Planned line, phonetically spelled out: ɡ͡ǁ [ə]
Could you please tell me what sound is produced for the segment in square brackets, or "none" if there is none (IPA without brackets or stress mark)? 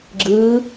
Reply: ɯ